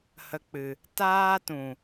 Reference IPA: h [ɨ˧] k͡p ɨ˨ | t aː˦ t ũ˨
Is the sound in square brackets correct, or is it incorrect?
incorrect